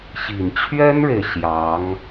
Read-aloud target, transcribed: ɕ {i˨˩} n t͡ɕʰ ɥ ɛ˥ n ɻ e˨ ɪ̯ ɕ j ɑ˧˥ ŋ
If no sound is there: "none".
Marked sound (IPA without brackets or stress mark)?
i˨˩